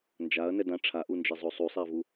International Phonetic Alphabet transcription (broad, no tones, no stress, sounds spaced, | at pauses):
n d͡ʒ a ɐ̯ n ɛ d ã ʈ͡ʂʰ a ʔ u n d͡ʒ e zˤ o sˤ u sˤ e ɐ̯ v u